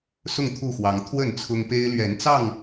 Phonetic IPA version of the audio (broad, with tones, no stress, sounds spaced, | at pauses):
s ʊ˥˨ ŋ t̪ʰ u˥˨ x w ɑ˨˦ ŋ t̪ʰ w ə˥˨ n t͡sʰ ʊ˦ ŋ p e˦ ɪ̯ l ɥ ɛ˨˦ n t͡s ɑ˥˨ ŋ